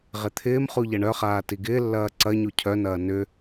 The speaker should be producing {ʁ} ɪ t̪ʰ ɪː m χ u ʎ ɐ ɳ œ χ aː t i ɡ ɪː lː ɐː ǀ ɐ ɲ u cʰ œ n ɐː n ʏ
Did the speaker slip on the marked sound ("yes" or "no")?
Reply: no